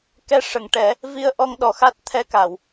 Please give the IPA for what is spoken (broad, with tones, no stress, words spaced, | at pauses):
kɛ˧ʂə˨˩˨ŋʈɛ˨˩˦ | vi˧ə̯ʔɔ˧ŋɗɔ˨˩xa˦˥t̚ t̪ʰɛ˧ka˨˩˨w